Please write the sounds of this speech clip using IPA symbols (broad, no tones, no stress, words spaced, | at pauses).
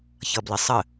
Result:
çʌblɪsˤə